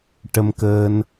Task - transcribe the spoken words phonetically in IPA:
ʈ ə˧ m k əː˧ n

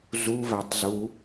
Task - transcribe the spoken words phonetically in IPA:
z u v æ tˤ z u

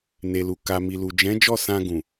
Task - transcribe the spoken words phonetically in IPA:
n e˨ l u˨ k a˨ m i˨ l u˨ d͡ʒ ɛ̃˨˦ d͡ʒ ɔ˦˨ s ã˧ ɡ ũ˨

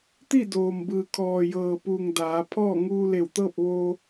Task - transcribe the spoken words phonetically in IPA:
t̪ i˥˨ d oː˩ m b ɯː˩ kʰ ɔː˩ j ɤː˩ p u˩ ŋ d aː˩˧ pʰ ɔː˥˨ ŋ uː˧ l e˧˩ w t̪ ɤː˥˨ p̚ ʋ oː˧

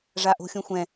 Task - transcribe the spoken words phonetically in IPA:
ʐ a ʔ o̤ xʲ õ xʷ ɛ̃

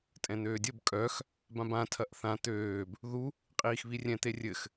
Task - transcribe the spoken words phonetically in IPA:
tʼ ɛ̃ n̪ øː dʲ ə b kʼ œ x | b ã b ã tʰ ɐ ʔ θ ã t̪ øː b | ð u | qʼ iː x β i rʲ ɛ̃ t̪ e rʲ ɘ x

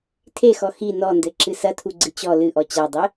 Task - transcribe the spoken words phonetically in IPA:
tʰ e x ɔ x i n ɔ n d ɘ ǁ ɨ s ɐ tʰ u ɡ͡ǀ ɨ t͡ɕ ɔ l ɨ ʔ ɔ t͡ɕ a dˤ ɘ

